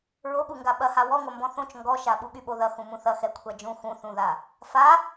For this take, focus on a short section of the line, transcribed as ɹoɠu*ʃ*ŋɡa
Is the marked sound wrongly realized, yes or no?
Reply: yes